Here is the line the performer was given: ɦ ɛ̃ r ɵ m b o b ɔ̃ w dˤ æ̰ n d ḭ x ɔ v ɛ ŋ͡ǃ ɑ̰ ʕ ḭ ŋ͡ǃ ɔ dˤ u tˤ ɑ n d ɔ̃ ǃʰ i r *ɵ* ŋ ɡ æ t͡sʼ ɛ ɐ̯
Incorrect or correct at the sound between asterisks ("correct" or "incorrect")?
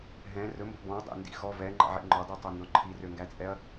incorrect